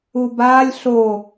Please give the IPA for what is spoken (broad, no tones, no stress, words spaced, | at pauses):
ubaːlʲ ɬo